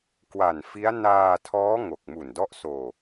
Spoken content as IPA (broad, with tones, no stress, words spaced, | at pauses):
kwa˨˩nfi˦˥a̯ naː˧tʰɔː˦˥ ŋo˨˩k̚mu˨˩n dɔ˦˥ʔsoː˧